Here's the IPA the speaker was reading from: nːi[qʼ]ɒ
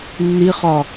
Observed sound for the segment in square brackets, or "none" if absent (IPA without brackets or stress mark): χ